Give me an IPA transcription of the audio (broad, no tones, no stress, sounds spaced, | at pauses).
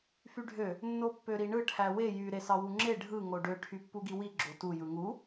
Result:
f y ɖʱ ø | nː o pː ø ɾ i ɳ ɯ ʈʰ æ w e j y ɾ e s ɑ w u ŋ͡ǁ e ɖʱ ɯ ŋ o ɖ ø ʈʰ y pː u ɡ i w i ɡ͡ǁ o t u j ɯ ŋ u